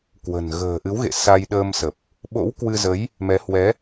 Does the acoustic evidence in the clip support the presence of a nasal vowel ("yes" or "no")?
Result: no